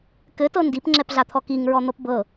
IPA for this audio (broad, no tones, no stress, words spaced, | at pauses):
kɘtɤ ndipŋ͡ǁɛpɮat̪ʰɔ kiŋɹɔn̪ɤp bɤ